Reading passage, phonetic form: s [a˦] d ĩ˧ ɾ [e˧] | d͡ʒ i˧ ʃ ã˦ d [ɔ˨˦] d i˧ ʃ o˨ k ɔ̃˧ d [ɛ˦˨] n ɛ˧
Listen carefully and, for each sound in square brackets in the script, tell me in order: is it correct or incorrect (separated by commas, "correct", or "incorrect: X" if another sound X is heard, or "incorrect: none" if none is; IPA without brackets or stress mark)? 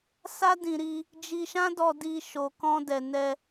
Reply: correct, incorrect: i˧, incorrect: ɔ˧, incorrect: ɛ˨